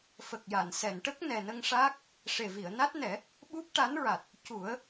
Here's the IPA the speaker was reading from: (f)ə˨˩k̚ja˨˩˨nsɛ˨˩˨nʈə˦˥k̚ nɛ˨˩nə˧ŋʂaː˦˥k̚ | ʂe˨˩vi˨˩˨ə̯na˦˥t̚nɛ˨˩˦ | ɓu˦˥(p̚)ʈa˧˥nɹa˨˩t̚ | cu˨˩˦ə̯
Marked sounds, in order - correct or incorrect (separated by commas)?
correct, correct